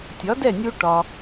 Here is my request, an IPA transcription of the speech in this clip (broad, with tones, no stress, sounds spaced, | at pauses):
tʲ ɒ˩˥ d ɛ˥˩ nʲ u˧ ʈ ɒ˩